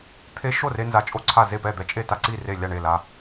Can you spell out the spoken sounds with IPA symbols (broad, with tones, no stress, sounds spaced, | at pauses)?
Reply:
t̪ʰ e˧ ʃ o˥˩ r e˧ n z a˧ t͡ʃʼ o˥˩ ǀʰ a˥˩ z e˥˩ p ɛ˥˩ d̪ ɛ˧ t͡ʃʼ e˥˩ t a˥˩ ǀ i˥˩ r e˥˩ lʲ a˥˩ ɳ e˥˩ l a˧